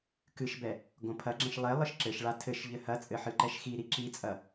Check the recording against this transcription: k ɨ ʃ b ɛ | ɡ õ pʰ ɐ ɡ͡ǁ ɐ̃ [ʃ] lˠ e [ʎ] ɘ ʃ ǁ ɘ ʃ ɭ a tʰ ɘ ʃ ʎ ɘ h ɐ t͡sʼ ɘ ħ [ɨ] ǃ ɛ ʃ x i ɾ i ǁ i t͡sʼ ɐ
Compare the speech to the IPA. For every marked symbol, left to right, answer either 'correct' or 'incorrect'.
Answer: correct, incorrect, correct

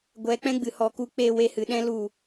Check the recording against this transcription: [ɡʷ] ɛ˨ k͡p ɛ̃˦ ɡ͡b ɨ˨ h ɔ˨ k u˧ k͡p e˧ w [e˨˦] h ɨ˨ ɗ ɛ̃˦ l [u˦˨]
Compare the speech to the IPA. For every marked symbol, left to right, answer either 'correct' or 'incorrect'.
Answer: correct, incorrect, correct

